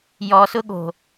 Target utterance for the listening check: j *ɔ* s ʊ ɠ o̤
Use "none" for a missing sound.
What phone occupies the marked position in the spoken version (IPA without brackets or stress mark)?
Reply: ɔ